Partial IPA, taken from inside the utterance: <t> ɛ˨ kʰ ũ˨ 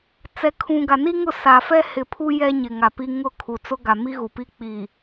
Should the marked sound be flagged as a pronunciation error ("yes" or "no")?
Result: yes